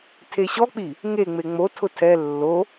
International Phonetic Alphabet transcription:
tʰ e ɕ ɔ k͡p i | ŋ e ŋ͡m e ŋ͡m o tʰ ʊ tʰ ɛ lː o

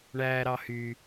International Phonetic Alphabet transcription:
ɳ æː ɾ ɑ h y

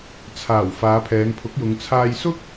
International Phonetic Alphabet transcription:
t͡sʰ aː˨˩ w f aː˨˧ pʰ ɛː˨˧ ŋ pʰ ʊ˨˥ k̚ j ʊ˨˧ ŋ t͡sʰ aː˧ j s ʊ˥ k̚

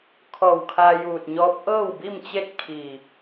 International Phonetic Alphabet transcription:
kʰ ɔː˧˩ w kʰ aː˧ j uː˧˩ t̚ ɲ ɔː˧˥ p̚ ʔ ɤː˥˨ w b i˥˨ m t͡ɕ e˥˨ t̚ kʰ i˧˩

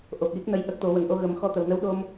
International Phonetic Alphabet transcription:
ʔ o˨˩ p̚ j i˦˥ k̚ n ə˧˥ j ʔ ə˦˥ k̚ t̪ o˨˩˦ w ə˨˩ ŋ ʔ o˧ ɣ ə˨˩˦ m x ɔ˧ t̪ ə˨˩ w n ə˧˥ w ɗ o˧ m

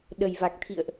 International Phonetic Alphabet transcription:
ɗ ə˨˩ j v a˨˩ k̚ t̪ʰ ḭ˧˨ ə̯ ʔ

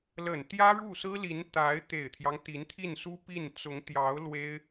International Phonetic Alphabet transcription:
l ə˨˩ n t̪ j ä˥ ɻ u˥˩ s ɹ̩˥ l i˧˥ n t̪ a˧˥ ɪ̯ t̪ e˨˩ ɪ̯ t̪ʰ j ɑ˦ ŋ t̪ i˧˥ n t̪ʰ i˥˩ n s u˥ p i˥˩ n t͡s ʊ˧˥ ŋ t̪ j ɑ˧˥ ʊ̯ l w e˥ ɪ̯

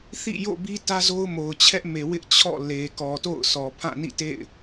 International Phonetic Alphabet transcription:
θ ḭ˦˨ j o̰˦˨ b i˦ t ä˦ z o˦ ʊ̯ m o˨ ʊ̯ t͡ɕʰ ɛ˦ ʔ m e˨ w ɪ˦ ʔ t͡ɕʰ ɔ̰˦˨ l e˨ k ɔ˨ t o̰˦˨ ʊ̯ s ɔ˨ pʰ ã˦˨ n ḭ˦˨ t ḛ˦˨ ɪ̯

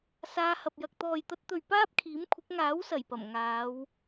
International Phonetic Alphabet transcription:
s aː˧ h ɐ˨ p̚ j ɐ˨ k̚ t̪ ɔː˨ j t̪ ɐ˧ t̚ t̪ ɵ˨ ɥ p aː˥ p̚ kʰ iː˨˥ m kʷʰ ɪ˨˥ k̚ ŋ aː˨˥ w s ɐ˨˩ j p ɐ˨˩ m ŋ aː˨˧ w

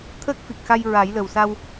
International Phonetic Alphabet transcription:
t̪ʰ əː˦˥ k̚ f i˨˩ k̚ x a˧ j ɹ a˨˩˦ j l ə˨˩ w s a˧ w

